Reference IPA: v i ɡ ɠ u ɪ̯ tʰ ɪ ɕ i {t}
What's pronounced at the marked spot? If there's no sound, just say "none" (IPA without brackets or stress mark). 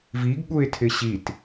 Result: t